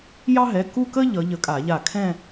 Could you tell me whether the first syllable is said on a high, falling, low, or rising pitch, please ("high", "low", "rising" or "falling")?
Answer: high